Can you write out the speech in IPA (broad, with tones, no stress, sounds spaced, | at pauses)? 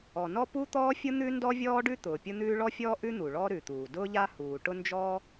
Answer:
ɔ˩ n ɔ˥ p u˥ t̪ ɔː˥ fʲ ʊ˥ n̪ ʉ˥ n d ɔ˥ vʲ ɔː˥ ɖ ʉ˥ t̪ ʊː˩ pʲ ʊ˥ n̪ ʉː˥ ɭ ɔ˥ fʲ ɔː˥ ʔ ʉ˥ n̪ u˩ ɭ ɔ˥ ɾ ʉ˩ t̪ uː˩ d ʊː˥ ʎ a˥ h uː˩ ʈ ʊ˥ n d͡ʒ ɔ˥